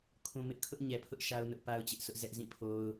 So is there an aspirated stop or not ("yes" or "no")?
yes